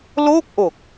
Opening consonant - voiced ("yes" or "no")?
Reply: yes